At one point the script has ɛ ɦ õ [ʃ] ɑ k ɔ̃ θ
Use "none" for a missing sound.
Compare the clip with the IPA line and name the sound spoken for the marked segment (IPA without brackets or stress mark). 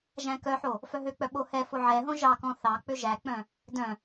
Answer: ʒ